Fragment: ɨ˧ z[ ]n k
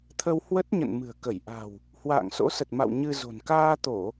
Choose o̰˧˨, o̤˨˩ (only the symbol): o̤˨˩